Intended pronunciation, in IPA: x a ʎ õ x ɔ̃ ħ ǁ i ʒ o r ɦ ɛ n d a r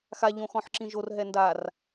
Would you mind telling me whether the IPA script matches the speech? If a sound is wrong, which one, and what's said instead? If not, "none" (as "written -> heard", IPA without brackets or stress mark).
i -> ĩ